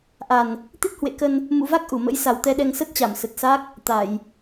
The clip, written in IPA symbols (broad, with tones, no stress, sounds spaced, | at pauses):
ʔ a˨˩ n | t̪ i˦˥ t̚ h w ḛ˧˨ k ə˧ n | m ṵ˧˨ v a˦˥ k̚ ʔ u˧˩ m ə̰˧˥ j s a˨˩ w t̪ ɛ˧ ɗ ɛ˧ ŋ s ə˦˥ t̚ t͡ɕ a˧˩ m s ə˨˩ t̚ s a˦˥ k̚ | t̪ a˧˩˨ j